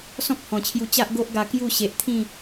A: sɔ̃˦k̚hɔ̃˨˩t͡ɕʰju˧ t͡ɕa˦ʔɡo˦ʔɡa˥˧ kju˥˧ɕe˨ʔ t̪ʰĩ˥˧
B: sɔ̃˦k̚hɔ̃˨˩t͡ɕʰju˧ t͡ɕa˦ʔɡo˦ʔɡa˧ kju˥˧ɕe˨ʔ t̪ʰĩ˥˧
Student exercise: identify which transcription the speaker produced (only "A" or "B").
B